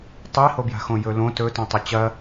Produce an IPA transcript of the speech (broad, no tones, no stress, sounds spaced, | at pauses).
tˤ i h o b j a̤ x õ j ɵ l õ t ɵ t õ tˤ ɵ t͡ɕ ɐ